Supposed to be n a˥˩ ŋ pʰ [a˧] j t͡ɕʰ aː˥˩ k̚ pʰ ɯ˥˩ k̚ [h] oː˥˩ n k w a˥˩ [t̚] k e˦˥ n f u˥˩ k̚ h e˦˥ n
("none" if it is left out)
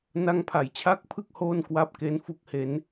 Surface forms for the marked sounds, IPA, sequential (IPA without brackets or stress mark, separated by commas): a˨˩, h, p̚